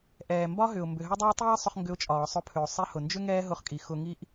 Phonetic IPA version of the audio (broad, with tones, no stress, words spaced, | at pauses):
ʔɛː˩ mbɒ˥ɦʏ˩ʊ̯ mbʏ˩ɦʏ˥ dˤʏ˥ə̯tˤiː˥sˤʊ˧χ ŋɡʏ˧ʊ̯ t͡ʃʼɒː˩sˤʊ˧pʰʏ˩ʊ̯ sˤi˧hʊ˩nd͡ʒʏ˥ ŋɛː˥ɦʊ˧χkʼi˩ xʊ˧ŋi˥ʔ